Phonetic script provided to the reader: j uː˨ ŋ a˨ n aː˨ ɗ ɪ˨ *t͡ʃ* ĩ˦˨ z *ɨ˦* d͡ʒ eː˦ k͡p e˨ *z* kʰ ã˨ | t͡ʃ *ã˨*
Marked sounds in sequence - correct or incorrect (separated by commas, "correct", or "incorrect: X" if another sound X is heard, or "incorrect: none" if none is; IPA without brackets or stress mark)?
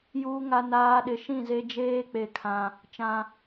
incorrect: ʃ, incorrect: e˦, incorrect: none, correct